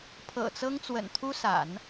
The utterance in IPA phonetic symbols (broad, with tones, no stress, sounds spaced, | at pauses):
pʰ ɤ̰˨˩ t͡s ɤ˥ ŋ t͡s w ə̰˨˩ n t̪ʰ u˥ s a̰˨˩˦ n